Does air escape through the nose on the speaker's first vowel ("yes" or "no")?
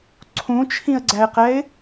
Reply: yes